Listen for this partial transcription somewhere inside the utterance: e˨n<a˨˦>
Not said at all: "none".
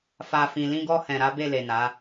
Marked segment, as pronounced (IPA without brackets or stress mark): a˨˦